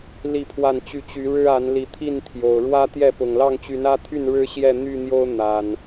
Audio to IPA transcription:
li˥˨pʰwa˥˨nt͡ɕy˥˨ t͡ɕy˨˦ɻɻ̩˦a˨˦n li˨˦t̪ʰi˥˨nt̪ʰjo˨˩ʊ̯ ɻwä˦ t̪jɛ˥˨pʊ˨˩ŋ lɑ˥˨ŋt͡ɕy˨˦nä˦t̪ʰy˥˨n ɻɻ̩˦ ɕjɛ˥˨n̪y˥˨n̪jo˦ʊ̯ n̪a˨˩n

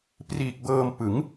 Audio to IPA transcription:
priː˨˩k̚bɤː˧mpɯ˩˦ŋ

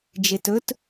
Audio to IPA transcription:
d͡ʒetɵt

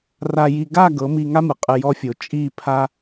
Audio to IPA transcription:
ra˧ji˧ ɡa˦˨ ɡɤ˨˦mi˧ŋa˦mɯ˨ qʼɯ˧jɔ˦ fʲo˨t͡ʃʼi˦˨pʰa˦

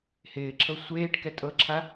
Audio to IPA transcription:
hɪːǁʰɤ sʷeːʈ kɛtʼɤǁʰa

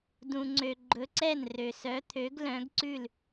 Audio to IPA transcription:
dũ˨ŋ͡ǀø˨ ɡ͡ǃɵ˨˥ǀɛ˥˩n rø˨sœ˨˥t̪ʰø˨˥ɡ lœ̃˨˥ɡǀʉ˥˩l

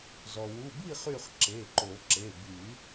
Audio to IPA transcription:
zɔ˩wu˩˧˩bi˥˨χy˧˩χ ǁe˩˧˩ǃo˨˩˦ǁe˩˧˩ by˨˩˦

